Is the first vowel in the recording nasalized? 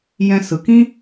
yes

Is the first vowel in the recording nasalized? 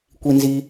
no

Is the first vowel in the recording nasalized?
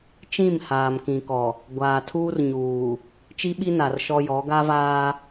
yes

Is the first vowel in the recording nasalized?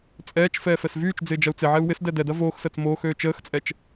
no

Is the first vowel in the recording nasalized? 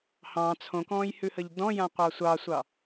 yes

